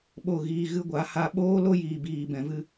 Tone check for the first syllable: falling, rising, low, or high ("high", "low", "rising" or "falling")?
falling